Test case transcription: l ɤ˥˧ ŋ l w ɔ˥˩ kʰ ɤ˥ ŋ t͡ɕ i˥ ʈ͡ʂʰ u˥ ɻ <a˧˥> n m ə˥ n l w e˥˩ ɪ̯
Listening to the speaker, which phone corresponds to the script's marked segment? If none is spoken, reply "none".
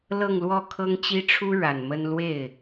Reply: a˨˩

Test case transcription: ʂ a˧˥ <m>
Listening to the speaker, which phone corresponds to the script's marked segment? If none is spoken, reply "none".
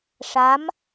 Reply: m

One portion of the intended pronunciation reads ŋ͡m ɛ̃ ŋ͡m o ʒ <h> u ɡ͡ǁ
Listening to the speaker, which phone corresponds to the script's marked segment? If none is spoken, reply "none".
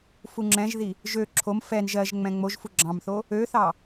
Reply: f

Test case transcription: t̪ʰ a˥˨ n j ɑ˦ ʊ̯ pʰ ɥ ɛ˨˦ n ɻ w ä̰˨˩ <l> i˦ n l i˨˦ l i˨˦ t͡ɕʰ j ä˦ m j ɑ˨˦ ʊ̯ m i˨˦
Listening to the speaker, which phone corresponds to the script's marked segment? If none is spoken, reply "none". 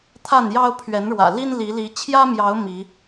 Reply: l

